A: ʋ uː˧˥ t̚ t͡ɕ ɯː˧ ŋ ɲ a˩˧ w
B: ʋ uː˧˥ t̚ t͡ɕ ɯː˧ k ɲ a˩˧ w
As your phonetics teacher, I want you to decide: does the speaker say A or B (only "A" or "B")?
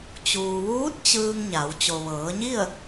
A